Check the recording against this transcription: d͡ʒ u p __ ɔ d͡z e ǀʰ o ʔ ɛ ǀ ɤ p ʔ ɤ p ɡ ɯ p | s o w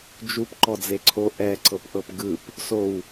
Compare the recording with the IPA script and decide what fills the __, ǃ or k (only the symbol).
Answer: ǃ